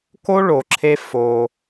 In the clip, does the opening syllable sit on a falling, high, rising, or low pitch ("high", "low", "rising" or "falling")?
high